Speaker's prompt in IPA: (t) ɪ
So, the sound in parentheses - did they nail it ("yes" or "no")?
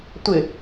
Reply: no